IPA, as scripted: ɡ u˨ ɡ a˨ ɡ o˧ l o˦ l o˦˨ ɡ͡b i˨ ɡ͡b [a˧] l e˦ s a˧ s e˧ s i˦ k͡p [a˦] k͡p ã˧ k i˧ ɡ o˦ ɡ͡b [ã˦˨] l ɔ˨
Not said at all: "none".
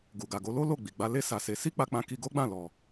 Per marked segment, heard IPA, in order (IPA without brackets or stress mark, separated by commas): a˧, a˧, ã˦˨